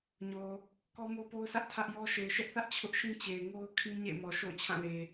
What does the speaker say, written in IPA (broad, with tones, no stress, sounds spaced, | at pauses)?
ɲ o˨ | k ɔ˦ m o˦ p o˦ ʊ̯ sʰ ä˦ ʔ tʰ ä˦ ʔ j ɔ˦ ʃ e˨ ɪ̯ ʃ ɛ˦ ʔ θ ä˦ ʔ t͡ɕʰ ʊ˦ ʔ ʃ ĩ˦ t͡ɕ e˨ ɪ̯ ŋ o˦ ʊ̯ kʰ ĩ˦ ɲ ḛ˦˨ ɪ̯ m ɔ˨ ʃ o̰˦˨ ʊ̯ t͡ɕʰ ã˦˨ l e˨